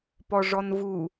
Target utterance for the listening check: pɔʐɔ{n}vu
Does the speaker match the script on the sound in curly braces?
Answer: yes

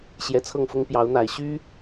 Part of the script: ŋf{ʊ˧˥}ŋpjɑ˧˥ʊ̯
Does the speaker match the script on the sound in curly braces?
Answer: no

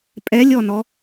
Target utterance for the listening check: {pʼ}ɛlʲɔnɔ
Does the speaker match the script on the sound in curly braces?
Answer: yes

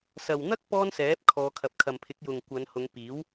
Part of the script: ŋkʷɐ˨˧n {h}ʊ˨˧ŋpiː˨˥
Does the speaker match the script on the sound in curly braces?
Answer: yes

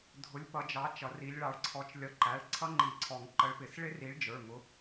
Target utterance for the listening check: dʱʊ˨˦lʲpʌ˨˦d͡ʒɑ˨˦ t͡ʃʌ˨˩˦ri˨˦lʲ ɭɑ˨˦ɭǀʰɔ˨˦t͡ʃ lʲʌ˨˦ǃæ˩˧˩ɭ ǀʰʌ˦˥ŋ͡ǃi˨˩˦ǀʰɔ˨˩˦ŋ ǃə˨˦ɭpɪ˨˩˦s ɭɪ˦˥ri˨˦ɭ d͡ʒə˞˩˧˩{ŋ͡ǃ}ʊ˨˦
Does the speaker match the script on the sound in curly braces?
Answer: no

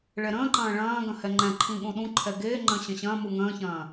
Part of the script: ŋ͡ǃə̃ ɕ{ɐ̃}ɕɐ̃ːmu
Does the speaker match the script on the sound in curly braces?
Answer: yes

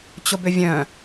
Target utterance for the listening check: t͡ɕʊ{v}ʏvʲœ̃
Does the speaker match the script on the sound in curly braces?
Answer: no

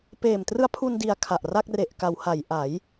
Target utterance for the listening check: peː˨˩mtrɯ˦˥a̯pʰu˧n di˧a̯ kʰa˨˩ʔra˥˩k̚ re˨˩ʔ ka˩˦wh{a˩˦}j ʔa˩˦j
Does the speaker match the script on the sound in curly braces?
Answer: yes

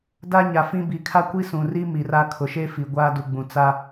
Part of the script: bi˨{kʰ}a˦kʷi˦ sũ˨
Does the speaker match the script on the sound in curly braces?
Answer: yes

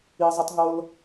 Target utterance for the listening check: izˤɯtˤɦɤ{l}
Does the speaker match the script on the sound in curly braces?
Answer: yes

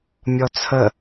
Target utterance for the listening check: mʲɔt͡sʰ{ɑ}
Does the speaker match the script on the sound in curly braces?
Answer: no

